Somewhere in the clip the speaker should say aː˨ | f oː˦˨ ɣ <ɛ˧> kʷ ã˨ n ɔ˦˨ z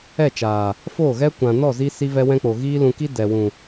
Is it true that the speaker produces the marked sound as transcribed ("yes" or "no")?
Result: no